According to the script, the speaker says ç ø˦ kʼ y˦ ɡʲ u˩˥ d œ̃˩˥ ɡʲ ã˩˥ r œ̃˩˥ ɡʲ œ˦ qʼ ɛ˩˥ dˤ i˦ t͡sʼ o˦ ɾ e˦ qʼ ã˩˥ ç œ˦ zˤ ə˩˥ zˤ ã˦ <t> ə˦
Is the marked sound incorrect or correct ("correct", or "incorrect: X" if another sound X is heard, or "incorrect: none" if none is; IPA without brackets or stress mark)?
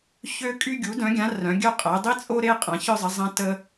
correct